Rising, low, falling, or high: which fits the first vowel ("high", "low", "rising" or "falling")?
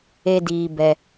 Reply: high